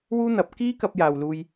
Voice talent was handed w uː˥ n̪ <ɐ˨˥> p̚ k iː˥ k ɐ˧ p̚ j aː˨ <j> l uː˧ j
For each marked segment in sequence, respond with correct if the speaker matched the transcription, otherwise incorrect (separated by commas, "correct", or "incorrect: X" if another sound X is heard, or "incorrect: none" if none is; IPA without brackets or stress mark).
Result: correct, incorrect: w